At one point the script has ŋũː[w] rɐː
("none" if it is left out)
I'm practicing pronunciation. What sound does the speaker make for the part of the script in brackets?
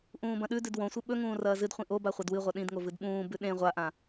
none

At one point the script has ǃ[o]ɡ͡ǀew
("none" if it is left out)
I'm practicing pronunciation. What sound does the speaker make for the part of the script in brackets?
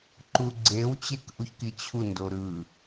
u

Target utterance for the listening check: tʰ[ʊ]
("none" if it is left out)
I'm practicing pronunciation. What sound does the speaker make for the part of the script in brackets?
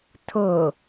ʊ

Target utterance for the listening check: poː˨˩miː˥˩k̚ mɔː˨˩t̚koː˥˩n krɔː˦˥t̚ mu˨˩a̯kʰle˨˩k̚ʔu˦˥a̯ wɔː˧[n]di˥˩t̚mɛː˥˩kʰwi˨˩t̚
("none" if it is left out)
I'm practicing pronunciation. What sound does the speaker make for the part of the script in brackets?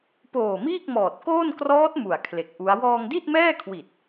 ŋ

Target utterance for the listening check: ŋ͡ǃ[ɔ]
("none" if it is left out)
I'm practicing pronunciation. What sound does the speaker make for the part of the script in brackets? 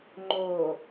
o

